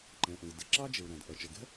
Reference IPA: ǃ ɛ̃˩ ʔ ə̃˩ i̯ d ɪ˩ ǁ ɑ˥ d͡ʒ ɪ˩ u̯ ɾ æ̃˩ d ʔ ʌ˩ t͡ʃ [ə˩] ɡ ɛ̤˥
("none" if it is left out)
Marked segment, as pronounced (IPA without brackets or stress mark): ə˩